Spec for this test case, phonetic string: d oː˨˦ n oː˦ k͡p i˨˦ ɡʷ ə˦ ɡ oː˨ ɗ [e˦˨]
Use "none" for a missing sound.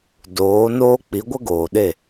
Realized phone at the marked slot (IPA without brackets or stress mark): e˦˨